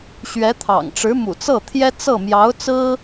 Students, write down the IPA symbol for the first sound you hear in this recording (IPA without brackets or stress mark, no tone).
ɕ